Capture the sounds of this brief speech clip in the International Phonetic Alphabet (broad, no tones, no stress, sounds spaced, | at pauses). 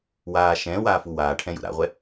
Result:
w aː ʃ ɛ̃ː w aː f u w aː ʈʰ ɛ̃ j ṵ ɾ a̰ ʁʷ ɛ